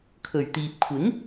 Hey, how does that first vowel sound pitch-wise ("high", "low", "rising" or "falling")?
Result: low